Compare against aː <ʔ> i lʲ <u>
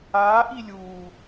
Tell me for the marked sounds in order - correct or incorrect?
correct, incorrect: uː

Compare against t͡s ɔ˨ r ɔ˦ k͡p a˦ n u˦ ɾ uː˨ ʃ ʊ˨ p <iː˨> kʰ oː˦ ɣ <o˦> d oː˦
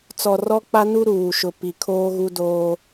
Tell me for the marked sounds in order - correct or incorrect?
incorrect: i˨, incorrect: u˦

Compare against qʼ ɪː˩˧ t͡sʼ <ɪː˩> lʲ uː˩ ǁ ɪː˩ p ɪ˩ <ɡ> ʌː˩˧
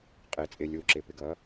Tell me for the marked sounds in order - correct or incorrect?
correct, correct

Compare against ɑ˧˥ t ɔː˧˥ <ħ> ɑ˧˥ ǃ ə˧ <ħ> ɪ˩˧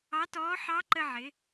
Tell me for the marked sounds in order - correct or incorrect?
correct, incorrect: ʕ

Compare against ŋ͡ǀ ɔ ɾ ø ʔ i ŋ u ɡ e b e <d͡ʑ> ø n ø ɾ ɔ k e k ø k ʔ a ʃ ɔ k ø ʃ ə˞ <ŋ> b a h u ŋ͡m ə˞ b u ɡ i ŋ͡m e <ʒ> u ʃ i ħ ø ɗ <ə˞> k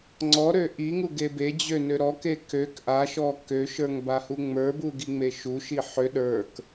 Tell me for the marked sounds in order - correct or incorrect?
correct, correct, incorrect: ʃ, correct

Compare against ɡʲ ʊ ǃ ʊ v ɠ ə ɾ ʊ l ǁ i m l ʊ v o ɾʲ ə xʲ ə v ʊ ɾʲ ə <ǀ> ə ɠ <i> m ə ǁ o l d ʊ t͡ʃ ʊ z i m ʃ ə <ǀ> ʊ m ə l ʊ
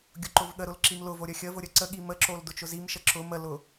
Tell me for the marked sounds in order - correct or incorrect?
correct, correct, incorrect: ǁ

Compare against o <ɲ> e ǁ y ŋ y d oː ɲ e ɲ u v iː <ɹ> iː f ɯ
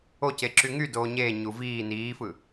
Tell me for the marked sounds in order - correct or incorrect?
incorrect: c, incorrect: n

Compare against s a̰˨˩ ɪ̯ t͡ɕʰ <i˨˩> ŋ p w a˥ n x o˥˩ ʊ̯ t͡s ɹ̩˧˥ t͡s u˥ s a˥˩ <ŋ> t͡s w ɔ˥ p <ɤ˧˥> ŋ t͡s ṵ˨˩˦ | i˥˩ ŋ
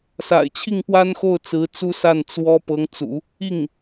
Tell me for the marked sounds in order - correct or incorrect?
incorrect: i˥˩, incorrect: n, correct

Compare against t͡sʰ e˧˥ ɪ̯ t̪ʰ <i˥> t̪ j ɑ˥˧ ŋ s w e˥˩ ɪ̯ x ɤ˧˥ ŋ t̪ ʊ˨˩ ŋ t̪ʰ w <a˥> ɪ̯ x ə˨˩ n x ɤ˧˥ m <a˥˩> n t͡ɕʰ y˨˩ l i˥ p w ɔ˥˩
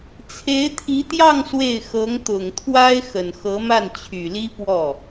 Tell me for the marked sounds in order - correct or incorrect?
incorrect: i˧˥, correct, correct

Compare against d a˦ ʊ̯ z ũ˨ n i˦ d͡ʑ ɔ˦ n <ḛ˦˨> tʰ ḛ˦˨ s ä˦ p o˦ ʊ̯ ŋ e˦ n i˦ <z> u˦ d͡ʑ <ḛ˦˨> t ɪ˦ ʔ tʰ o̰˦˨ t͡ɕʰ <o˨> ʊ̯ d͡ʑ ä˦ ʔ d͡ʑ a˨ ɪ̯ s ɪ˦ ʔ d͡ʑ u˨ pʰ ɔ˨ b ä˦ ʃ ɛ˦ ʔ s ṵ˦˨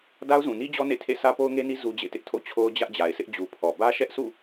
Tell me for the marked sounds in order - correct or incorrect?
correct, correct, correct, incorrect: o˦

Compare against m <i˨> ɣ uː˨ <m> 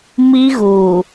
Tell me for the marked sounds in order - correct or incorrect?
incorrect: i˦, incorrect: none

